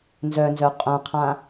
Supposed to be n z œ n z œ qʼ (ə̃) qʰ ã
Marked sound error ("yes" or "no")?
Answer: yes